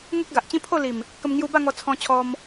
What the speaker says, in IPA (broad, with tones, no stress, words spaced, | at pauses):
ŋu˦k̚ɡa˨ʔt͡ɕĩ˦ pʰo˥˧li˨˩m | kə˧m ŋju˧ba˥˧ŋɔ˧ t͡sʰɔ̃˧ t͡ɕʰɔ˦m